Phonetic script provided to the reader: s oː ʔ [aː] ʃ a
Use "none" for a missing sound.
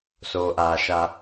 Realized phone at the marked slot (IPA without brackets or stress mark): aː